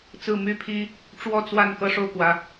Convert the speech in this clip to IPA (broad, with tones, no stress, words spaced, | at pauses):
t͡sɹ̩˥˨my˦pʰi˦ | ʈ͡ʂwɔ˥˨t͡swa˥˨n kɤ˦ʂo˥˨ʊ̯kwä˨˦